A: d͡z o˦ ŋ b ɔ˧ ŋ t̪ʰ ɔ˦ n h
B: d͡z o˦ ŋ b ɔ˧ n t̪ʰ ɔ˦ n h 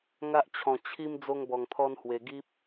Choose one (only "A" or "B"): A